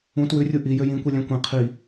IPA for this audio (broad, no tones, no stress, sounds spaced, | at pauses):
ũ t w ʉ rʲ u ʔ i j ø j ĩ kʷ i lʲ æ̃ kʷ ẽ qʰ i